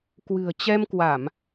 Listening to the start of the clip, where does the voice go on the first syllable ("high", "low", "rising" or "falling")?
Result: low